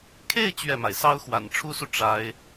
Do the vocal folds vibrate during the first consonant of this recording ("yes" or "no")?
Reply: no